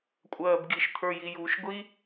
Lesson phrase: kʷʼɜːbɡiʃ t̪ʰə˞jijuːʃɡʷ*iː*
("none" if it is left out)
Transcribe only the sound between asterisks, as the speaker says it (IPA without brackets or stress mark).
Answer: i